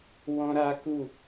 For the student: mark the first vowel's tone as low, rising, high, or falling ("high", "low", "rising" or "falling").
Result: high